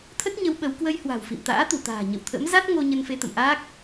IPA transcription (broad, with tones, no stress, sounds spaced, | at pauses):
t̪ʰ ə˦˥ t̚ ɲ ə˨˦ w ɓ ə˨˦ w k w ə˧ j h w a̤˨˩ w f ḭ˧˨ m t̪ a̰ː˧˥ t̪ u˧˩ t̪ a̤ː˨˩ ɲ ə̰˧˨ w t̪ʰ ə̰˧˥ m z a˦˥ t̚ ŋ o˧ ɲ ə˧ n f e˧ t̪ ə̰˧˨ m ʔ aː˦˥ k̚